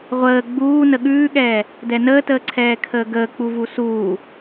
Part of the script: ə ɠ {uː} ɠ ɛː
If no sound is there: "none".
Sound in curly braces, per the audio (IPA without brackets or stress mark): ʉː